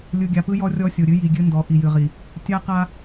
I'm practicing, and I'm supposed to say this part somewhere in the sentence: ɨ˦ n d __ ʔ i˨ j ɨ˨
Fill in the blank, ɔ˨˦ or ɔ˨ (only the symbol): ɔ˨˦